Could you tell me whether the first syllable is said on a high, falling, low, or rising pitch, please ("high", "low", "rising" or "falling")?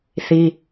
high